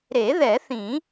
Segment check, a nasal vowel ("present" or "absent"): present